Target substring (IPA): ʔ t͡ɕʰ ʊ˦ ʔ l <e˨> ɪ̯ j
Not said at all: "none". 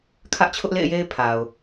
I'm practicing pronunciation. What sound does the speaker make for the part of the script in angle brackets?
ḛ˦˨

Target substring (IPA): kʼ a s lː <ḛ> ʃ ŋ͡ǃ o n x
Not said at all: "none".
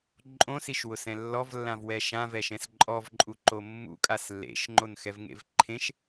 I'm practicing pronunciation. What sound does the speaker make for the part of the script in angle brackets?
ḛ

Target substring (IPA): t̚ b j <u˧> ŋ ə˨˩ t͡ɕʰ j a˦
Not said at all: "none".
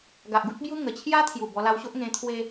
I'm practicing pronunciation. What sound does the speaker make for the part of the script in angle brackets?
u˦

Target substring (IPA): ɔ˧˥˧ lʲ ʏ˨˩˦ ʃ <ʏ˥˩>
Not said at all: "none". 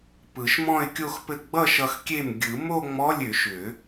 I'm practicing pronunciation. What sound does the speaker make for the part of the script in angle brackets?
ʏ˨˩˦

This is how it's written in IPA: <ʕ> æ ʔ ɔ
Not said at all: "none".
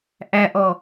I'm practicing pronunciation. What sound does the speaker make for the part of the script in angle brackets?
ʔ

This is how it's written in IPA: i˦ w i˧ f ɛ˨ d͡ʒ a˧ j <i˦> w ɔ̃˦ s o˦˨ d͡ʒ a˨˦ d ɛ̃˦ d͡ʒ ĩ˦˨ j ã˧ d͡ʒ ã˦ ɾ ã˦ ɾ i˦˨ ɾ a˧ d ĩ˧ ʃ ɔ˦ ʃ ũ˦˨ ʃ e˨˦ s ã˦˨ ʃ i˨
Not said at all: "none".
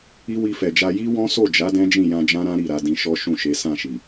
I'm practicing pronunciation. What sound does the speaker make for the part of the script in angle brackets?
i˦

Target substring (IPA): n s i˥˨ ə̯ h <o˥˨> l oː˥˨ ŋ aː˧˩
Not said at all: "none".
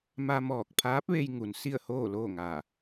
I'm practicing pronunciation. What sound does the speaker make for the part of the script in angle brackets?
oː˥˨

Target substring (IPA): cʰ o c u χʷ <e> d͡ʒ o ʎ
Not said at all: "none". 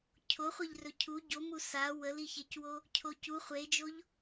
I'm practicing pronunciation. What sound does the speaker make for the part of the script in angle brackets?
e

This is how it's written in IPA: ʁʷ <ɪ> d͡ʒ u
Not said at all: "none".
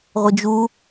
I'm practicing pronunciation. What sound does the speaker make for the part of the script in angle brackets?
ɪ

